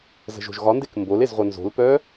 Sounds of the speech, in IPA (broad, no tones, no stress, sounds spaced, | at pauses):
z ə̤ ʒ o̤ ʒ ɣ ɒ n d e k m b o l e z ʁʷ œ n z o̤ l p œ